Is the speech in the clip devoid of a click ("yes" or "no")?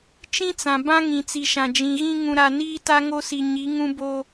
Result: yes